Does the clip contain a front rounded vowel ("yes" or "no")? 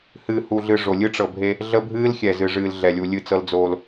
no